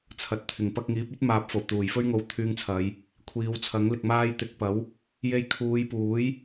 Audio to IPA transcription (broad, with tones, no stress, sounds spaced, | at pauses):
t͡sʰ ɐ˨ t̚ t̪ʰ ɪ˨˩ ŋ p ɐ˧ k̚ ŋ iː˨˥ p̚ ɵ˥ t̚ m aː˨˥ p̚ f o˨˩ w t̪ uː˨˩ j f ɵ˥ ɥ ŋ o˧ w t̪ʰ yː˧ ŋ t͡sʰ ɐ˨˧ j | kʷʰ iː˨˧ w t͡sʰ ɐ˨˥ ŋ l ɪ˨ k̚ m aː˧ j t̪ ɪ˨˥ k̚ p ɐ˨˥ w | j e˧ j kʰ uː˨˧ j p uː˨˥ j